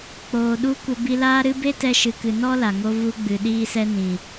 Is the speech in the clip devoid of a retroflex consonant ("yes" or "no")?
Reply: yes